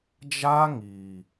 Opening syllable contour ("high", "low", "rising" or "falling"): high